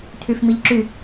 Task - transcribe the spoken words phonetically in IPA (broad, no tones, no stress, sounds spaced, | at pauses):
tʰ y f m i ʎ ǁ y